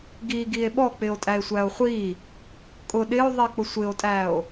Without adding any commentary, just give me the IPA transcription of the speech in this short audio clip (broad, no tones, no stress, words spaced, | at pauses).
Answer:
ɡi ɡie̯ɓɔk͡pɪo̯ tʼæe̯sʷæo̯χʷi | kʼʊ ɗɪo̯ðˤi k͡pʊsʷɪo̯tʼæo̯